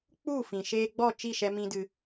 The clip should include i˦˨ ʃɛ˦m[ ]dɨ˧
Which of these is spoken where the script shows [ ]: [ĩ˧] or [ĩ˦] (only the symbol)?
ĩ˦